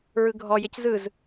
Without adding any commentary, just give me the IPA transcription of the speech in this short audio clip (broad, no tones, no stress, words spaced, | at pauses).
ɹɯɡʱɔ jeczɯz